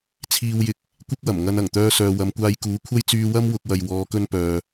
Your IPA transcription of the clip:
t͡sʰ iː˧ w j ɪ˧ k̚ | kʷ ɪ˥ k̚ w ɐ˨˩ m ŋ ɐ˧ n ɐ˨˩ ŋ t̪ œː˧ s œː˨ w ɐ˨˧ m kʷ aː˧ j k uː˨˥ kʷʰ ɐ˥ j t͡s yː˧ w ɐ˥ m w ʊ˥ k̚ w ɐ˧ j w ɔː˨˧ k ɵ˥ n p œː˨

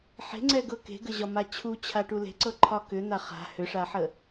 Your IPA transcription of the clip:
ħ e̤ ŋ͡ǀ ɛ ɡ ɤ k e̤ ɡ ə ʑ ɒ m a t͡ɕʰ u t͡ɕʰ a ʈ u l e̤ ǀ ɤ ǃʰ ɒ k ʏ n̪ a χ a̤ h ʏ ʂ a ħ ə

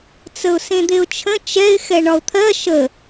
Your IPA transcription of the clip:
t͡s ə ʊ̯ s ẽ d̪ e ʊ̯ t͡ʃʰ ə̃ t͡ʃ ɛ ɪ̯ x ɛ ɳ ɒ ʊ̯ t̪ʰ ɜ ʃ ə

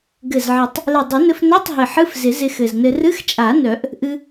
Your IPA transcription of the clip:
ɡ ɘ˨˩ z ʕ ɪ˨˩˦ tˤ | l ɪ˨˩ dˤ ɪ˨˩˦ n ɘ˧ f n œ˧˥˧ tˤ ɦ ɪ˨˩ ħ ɨ˧˥˧ f z ɪ˨˩˦ z ɪ˧ x ɘ˨˩ z n ɘ˧ r ɨ˧˥˧ x t͡ʃʼ a˨˩˦ n œ˨˩˦ ʔ | ʔ ɨ˧

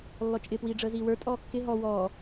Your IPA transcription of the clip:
lː ɔ t͡ʃʼ ɪ p w iː ɖ͡ʐ əː z iː w ə˞ tʼ ɔː kː ɪ ɦ ɔ w ɔː

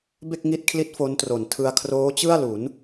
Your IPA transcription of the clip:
b e˥˩ k̚ ŋ i˦˥ t̚ kʰ l i˦˥ t̚ f o˦˥ n t r o˨˩ n tʰ ɯ˧ a̯ kʰ r oː˦˥ t͡ɕ ɯ˥˩ a̯ l u˩˦ n

